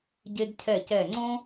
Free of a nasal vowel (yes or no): no